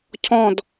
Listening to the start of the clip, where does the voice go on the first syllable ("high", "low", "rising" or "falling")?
falling